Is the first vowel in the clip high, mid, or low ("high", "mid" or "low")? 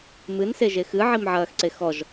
high